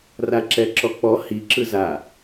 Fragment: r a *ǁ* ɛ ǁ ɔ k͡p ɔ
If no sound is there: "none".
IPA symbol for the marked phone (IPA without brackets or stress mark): ǁ